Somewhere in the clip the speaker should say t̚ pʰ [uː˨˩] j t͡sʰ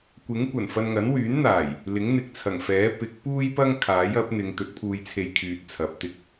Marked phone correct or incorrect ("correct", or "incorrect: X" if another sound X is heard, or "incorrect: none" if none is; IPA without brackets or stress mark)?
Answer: incorrect: uː˧